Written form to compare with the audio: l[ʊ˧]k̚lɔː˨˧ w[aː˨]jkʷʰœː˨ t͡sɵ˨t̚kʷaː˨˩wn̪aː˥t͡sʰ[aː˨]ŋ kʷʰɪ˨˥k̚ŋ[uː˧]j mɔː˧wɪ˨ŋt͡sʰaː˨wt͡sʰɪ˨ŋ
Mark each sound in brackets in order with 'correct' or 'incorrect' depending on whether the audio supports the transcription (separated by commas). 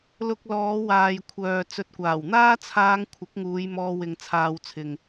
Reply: correct, correct, incorrect, incorrect